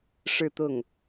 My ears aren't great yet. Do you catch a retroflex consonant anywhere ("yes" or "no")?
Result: yes